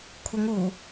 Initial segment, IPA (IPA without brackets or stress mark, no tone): kʷʰ